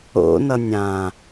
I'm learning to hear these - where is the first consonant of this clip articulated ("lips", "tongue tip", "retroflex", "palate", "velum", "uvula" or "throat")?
tongue tip